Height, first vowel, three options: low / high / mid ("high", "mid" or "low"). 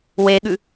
mid